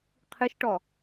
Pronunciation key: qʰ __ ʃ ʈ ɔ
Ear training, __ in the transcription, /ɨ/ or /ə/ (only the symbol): ɨ